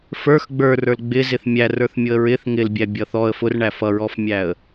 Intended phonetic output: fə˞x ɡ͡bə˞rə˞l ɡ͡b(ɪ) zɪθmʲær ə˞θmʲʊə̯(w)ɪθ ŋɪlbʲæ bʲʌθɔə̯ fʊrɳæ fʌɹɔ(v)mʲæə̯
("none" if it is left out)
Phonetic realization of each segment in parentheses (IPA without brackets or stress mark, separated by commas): ɪ, ɹ, f